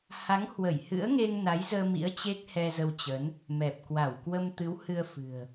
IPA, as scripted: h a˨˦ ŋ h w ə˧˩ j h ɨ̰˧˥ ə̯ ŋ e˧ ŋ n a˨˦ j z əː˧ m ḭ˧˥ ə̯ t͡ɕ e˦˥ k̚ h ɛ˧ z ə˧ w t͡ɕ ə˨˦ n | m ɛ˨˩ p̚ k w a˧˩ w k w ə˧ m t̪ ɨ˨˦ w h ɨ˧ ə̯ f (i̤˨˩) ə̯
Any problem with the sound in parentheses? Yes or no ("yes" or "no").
yes